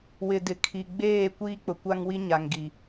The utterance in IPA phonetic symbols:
w ɪ˨ d ɪ˨ kʰ i˨ ɡ͡b eː˦˨ kʷ iː˦ k͡p ʊ˨ kʷ a˦ ŋ w i˦ ɲ a˨ ŋ ɡ i˨

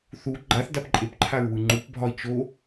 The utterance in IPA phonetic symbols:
θ u ɡ͡ǃ a θ d a p ǃʼ e p ǃʰ a ɹ w ɯ ŋ͡ǃ u p bʱ ɒ i̯ t͡ʃ o

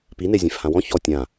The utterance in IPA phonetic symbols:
p i n e zʲ ẽ f h ã w ɔ̃ ç ɔ tʲ ã

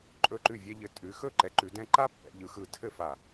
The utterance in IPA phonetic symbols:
ǃʼ ɵ˧˩ ǃ ʉ˧˩ vʲ ɛ˧ ʎ ɘ˧˩ tʼ ʉ˩˧ x ɵ˥˩ ǃ ɛ˩˧ ǃ ʉ˩˧ d ɛ̃˧ ǃ a˥ pː ɛ̰˩˧ ʎ ɯ˩˧ x ɯ˧˩ tʰ ɘ˥˩ f a˧˩

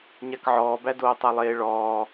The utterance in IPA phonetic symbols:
ɲ a k ʕ ɔː b æ d oː tˤ æ lˠ eː ɭ ɔː

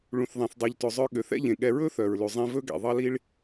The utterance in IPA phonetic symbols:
ɭ ũ˩ θ ðˤ ẽ˩ θ dˤ ʉ˩ ʎ t ɵ˩ zˤ œ˧ ɠ ø˩ θ ɛ̰˥ ʎ ẽ˩ ɠ ɛ˧ ɹ ɵ˥ θ œ˩ ɹ l ʉ˩ zˤ ĩ˧ v ɵ˥ ɡ ɛ̰˩ ðˤ ɑ˥ l i˥ ɭ

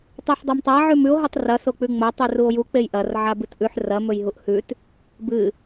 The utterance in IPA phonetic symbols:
tˤ ʉ ħ dˤ ɵ m tˤ a ʕ ʉ m ʉ o̯ ɦ i tˤ r ɐ s o k͡p ʉ ŋ͡m ɐ tˤ ʉ r u o̯ j u k͡p e j ʔ ɐ r ʕ a b ɨ t ʔ ʉ ħ r ɐ m ɵ j ɦ u ʔ h ʉ t | b ɨ

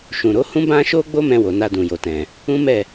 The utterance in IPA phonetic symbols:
ʃ ũ˨ ɾ o˨˦ h ũ˦ b ã˦ ʃ o˦ ɡ͡b o˦ m ɛ̃˧ w o˨ n a˧ d ũ˨ j o˨ t ɛ̃˨ | ũ˦ m ɛ˦˨

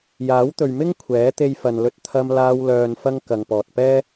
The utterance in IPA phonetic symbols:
j aː˨˥ w t̪ ɵ˨ ɥ m ɪ˥ ŋ kʷʰ ɛː˨˥ t̪ e˧ j f ɐ˨ n l ɵ˧ t̚ t̪ʰ ɐ˧ m l aː˧ w l œː˨ n f ɐ˧ ŋ k ɐ˨ ŋ p ɔː˨ t̚ p ɛː˥

